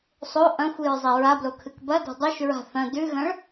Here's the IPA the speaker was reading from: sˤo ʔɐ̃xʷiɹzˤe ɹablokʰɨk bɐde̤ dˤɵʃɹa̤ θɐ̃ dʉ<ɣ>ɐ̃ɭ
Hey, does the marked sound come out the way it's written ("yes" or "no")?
yes